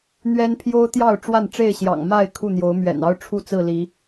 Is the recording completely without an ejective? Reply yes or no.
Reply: yes